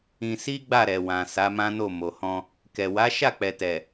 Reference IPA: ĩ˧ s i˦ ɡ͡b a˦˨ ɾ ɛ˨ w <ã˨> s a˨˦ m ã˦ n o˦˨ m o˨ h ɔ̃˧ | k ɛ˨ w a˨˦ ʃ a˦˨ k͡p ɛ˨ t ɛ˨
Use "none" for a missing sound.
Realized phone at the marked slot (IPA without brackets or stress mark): ã˨